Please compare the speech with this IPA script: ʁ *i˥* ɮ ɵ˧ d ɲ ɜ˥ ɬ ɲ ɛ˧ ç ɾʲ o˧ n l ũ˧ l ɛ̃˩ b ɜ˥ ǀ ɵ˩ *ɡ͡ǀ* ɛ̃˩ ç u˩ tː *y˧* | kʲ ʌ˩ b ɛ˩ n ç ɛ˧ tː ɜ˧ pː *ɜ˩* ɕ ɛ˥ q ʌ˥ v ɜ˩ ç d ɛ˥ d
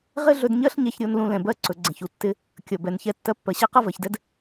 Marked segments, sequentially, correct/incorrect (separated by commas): incorrect, correct, incorrect, correct